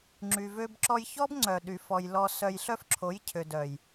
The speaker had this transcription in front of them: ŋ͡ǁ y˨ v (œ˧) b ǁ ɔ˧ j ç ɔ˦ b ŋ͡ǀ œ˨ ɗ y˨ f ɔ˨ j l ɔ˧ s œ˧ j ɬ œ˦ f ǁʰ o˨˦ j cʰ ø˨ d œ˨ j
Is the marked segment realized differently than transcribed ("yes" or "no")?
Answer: yes